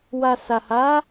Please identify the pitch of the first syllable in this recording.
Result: low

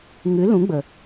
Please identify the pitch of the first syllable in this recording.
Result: rising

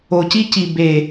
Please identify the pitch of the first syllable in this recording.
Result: low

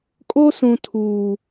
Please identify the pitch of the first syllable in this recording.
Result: high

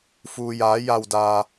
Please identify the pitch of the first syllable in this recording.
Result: low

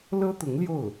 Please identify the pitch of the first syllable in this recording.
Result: high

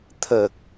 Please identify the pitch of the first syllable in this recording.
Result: low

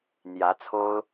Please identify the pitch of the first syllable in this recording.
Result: rising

